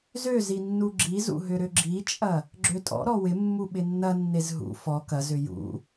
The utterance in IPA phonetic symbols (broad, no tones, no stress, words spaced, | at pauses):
zø zinːuɡ͡ǁizṵ ɦʏɾʏɡ͡ǁit͡ʃʼɐ | ɡ͡ǁøtʼɔ̰ɾɔ wɪmːu ɓɪnːɐnːez ɦṵ fɔ kɐzʏ jṵ